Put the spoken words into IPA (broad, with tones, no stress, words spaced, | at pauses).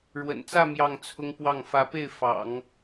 ɻwə̰˨˩nt͡sä˥˧ mjɑ˥˩ŋt͡sʰʊ˥ŋpwɑ˥˩ŋ fä˧˥pe˥˩ɪ̯ fɑ̰˨˩˦ŋ